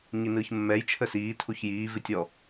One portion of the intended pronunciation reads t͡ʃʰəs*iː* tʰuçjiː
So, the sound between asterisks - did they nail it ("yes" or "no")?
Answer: yes